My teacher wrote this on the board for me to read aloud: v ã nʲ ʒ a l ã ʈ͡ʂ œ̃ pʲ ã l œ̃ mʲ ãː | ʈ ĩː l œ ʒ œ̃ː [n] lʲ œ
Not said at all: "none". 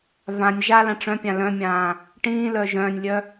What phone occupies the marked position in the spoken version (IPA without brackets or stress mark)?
nʲ